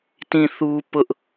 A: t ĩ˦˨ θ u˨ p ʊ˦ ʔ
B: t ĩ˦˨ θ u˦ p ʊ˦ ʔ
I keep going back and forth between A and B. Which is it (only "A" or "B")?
B